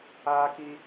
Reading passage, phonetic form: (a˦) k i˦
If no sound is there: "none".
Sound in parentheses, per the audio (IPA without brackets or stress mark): aː˦